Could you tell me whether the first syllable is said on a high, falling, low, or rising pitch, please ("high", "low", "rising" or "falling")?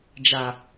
low